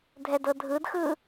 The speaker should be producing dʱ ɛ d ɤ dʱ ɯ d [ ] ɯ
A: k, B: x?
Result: B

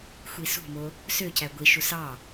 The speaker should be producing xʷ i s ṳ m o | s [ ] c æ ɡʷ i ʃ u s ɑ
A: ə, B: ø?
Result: B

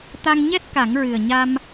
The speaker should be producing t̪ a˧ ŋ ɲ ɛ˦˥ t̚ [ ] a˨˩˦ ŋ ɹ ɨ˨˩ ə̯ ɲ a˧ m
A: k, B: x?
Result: A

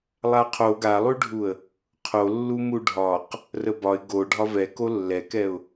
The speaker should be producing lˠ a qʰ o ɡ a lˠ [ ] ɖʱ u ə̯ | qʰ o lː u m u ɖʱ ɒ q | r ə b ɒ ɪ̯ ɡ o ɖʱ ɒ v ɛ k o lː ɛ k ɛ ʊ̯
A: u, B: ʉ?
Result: B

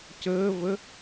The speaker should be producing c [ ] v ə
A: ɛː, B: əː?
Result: B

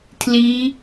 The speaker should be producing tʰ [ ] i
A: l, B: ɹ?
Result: A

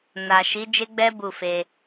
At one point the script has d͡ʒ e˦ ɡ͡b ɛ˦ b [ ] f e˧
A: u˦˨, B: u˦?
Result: A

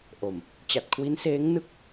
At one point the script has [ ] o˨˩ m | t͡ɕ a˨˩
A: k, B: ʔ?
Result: B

